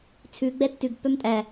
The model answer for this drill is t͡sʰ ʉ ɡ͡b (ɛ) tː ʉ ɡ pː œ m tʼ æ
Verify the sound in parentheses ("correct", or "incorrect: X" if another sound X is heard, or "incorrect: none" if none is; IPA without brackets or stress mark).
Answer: correct